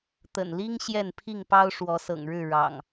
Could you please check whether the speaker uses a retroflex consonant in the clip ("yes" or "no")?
yes